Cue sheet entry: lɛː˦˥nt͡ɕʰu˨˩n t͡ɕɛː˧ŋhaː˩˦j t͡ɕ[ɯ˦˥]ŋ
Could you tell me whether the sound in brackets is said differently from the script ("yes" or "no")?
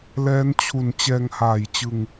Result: yes